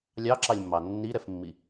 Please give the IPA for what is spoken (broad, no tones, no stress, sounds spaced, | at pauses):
lʲ ɑ ǁ ɑ lʲ mː ɑ nː i ɾ ɛ f mː i